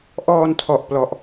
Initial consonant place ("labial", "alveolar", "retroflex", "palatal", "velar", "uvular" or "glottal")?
glottal